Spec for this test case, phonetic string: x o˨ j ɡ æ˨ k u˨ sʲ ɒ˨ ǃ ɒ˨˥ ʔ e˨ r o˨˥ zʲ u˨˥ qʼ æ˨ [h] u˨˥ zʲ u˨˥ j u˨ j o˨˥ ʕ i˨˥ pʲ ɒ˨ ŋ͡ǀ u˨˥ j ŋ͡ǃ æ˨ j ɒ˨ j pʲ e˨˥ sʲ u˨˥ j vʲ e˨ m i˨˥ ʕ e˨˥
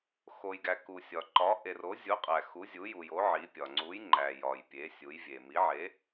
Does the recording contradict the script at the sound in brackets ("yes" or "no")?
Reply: yes